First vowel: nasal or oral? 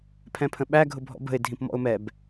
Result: nasal